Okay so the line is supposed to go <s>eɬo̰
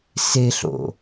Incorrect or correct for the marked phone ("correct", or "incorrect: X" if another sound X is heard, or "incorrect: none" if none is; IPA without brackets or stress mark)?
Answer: correct